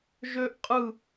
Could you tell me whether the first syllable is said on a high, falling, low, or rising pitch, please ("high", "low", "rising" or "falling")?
high